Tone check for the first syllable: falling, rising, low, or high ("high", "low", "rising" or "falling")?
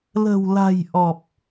low